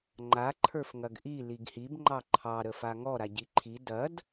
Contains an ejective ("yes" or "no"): no